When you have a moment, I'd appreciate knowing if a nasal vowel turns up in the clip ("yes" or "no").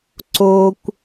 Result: no